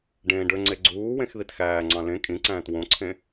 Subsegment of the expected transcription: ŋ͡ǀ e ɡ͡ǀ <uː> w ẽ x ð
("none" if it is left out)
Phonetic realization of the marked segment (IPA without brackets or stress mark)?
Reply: uː